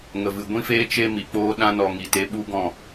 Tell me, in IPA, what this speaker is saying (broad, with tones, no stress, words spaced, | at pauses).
ŋə˨vɨ˨ ɡʷĩ˦feː˦ t͡ʃe˦ mi˨k͡poː˦ ɗã˧nɔ˨ ŋi˨te˧ ɓu˦ɡɔ̃˦˨